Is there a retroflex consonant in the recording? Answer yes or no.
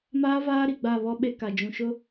no